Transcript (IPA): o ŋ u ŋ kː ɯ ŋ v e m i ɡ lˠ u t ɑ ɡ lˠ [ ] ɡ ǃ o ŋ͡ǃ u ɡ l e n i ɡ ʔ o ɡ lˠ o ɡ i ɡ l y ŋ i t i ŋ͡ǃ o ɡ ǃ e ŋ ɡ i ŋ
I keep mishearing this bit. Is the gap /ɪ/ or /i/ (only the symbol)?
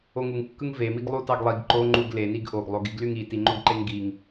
i